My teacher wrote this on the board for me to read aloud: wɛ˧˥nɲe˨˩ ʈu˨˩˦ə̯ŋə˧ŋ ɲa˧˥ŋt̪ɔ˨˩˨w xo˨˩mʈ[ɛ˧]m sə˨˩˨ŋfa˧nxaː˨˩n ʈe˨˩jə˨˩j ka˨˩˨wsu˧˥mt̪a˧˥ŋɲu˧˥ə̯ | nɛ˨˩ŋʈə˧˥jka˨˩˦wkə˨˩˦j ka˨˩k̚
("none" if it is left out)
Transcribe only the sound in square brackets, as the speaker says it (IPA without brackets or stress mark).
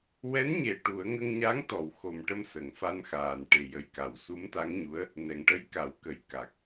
ə˧